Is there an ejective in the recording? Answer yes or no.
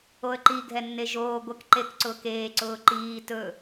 no